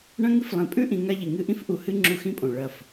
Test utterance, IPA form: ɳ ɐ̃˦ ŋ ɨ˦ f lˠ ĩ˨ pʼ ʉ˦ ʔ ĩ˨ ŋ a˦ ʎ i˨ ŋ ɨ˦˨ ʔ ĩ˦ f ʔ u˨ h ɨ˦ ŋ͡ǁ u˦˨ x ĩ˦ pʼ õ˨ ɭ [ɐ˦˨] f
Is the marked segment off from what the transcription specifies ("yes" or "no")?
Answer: no